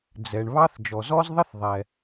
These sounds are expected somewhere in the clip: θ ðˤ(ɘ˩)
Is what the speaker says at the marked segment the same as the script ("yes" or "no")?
no